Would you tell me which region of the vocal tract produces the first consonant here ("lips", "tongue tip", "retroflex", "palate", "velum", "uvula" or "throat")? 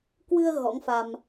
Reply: velum